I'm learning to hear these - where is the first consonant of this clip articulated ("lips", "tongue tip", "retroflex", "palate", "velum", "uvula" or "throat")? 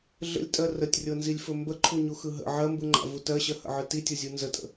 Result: tongue tip